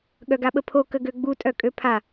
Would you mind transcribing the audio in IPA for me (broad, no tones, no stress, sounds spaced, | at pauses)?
ɠ œ ɡ a ɓ ə pʰ o k ə ɡ ø ɡ͡b u tʼ œ kʼ ø pʰ a